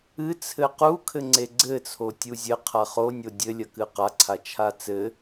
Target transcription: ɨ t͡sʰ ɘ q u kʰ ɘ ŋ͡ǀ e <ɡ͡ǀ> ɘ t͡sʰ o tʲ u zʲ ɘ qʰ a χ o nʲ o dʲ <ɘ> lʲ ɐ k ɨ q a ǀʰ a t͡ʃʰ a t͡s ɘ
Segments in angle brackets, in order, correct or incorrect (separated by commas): correct, correct